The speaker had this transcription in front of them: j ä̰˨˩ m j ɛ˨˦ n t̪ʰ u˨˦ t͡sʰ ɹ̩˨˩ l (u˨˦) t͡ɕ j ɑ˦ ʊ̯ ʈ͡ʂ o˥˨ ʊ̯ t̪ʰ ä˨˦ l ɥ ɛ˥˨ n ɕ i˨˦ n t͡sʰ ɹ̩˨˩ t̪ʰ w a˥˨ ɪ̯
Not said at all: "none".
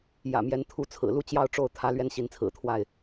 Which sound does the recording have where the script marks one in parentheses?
u˥˨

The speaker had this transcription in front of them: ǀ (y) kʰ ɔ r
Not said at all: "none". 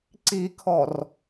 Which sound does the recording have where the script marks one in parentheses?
i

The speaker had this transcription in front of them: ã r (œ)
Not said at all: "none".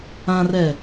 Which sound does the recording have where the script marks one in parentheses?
ɛ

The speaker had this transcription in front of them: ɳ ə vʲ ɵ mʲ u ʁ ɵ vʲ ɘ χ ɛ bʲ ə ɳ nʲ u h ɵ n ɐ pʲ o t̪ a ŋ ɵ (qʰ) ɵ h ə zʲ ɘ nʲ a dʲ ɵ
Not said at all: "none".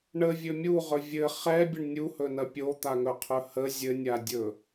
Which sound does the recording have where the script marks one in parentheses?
qʰ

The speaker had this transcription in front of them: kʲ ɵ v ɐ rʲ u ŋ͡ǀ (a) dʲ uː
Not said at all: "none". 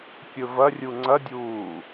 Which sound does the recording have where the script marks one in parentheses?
ɐ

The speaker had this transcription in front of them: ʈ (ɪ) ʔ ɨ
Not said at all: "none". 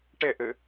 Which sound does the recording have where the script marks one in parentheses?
ɪ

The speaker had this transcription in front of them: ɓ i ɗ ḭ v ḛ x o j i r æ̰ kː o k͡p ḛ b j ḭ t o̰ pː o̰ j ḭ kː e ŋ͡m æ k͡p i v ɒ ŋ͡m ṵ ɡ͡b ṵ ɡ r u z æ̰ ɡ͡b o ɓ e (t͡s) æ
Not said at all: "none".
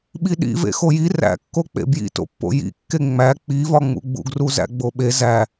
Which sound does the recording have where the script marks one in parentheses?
z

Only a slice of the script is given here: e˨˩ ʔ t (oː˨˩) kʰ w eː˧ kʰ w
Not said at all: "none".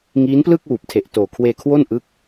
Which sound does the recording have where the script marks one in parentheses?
oː˨˩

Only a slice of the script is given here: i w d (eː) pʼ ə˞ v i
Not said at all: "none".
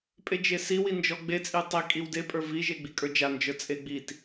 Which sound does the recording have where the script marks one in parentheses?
e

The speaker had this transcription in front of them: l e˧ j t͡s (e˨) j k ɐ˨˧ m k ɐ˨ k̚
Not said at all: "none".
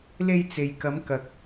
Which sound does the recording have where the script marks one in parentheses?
e˨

